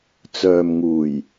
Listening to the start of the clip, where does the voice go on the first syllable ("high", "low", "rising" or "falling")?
low